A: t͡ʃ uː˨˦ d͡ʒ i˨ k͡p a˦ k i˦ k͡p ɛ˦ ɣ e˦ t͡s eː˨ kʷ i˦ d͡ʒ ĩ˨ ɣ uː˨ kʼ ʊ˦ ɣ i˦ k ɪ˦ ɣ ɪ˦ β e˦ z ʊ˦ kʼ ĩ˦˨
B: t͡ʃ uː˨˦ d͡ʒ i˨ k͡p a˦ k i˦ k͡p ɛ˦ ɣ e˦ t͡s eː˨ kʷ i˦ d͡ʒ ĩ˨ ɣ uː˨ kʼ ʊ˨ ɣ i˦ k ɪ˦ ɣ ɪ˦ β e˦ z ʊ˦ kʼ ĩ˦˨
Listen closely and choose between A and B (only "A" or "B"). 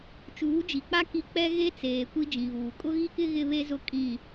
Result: A